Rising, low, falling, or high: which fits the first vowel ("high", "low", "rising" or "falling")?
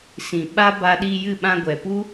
low